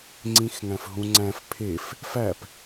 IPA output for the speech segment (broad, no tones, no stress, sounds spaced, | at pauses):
ŋ͡ǀ ĩ x ŋ æ̃ f ɦ ũ ŋ͡ǀ æ̃ f pʰ e f | f æ p